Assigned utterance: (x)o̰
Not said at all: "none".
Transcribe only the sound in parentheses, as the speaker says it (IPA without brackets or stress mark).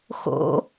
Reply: x